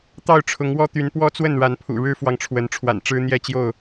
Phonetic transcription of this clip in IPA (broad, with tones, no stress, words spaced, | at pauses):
t̪ɑ˥˨ʊ̯ʈ͡ʂʰʊ˨˦ŋwɔ˦t̪y˨˦n pwɔ˦t͡swə˥˨nɻa˨˦npʰṵ˨˩ ɻɻ̩˦fwɑ˨ŋʈ͡ʂʰwə˨˦nʈ͡ʂʰwa̰˨˩n ʈ͡ʂɻ̩˦n̪jɛ˥˨t͡ɕjo˥˨ʊ̯